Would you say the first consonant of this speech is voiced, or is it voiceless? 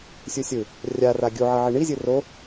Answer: voiceless